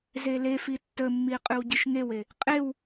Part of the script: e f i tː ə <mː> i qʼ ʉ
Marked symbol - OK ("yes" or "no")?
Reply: yes